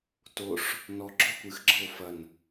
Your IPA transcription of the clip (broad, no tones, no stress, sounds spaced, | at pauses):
t o ʂ | n ɔ ɡ͡ǁ ɔ kʷ ɨ x ɡ͡ǁ ɤ o̯ f ɐ n